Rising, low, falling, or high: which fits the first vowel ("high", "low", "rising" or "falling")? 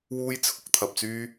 high